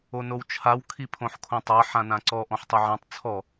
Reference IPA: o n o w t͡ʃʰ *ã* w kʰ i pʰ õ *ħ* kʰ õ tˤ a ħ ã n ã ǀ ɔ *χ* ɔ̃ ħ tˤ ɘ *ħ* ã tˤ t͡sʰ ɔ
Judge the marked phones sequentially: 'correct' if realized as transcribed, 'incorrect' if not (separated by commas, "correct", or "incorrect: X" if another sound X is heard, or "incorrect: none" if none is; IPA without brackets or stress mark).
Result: incorrect: a, correct, incorrect: ʔ, incorrect: ʕ